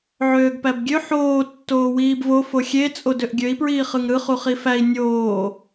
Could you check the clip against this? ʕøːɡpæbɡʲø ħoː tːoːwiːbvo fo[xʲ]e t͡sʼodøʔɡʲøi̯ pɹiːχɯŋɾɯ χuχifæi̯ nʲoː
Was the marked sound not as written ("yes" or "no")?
no